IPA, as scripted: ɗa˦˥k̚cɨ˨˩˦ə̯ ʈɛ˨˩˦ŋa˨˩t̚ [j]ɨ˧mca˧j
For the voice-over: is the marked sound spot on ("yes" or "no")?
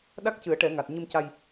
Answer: no